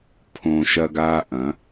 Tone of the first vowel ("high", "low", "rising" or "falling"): high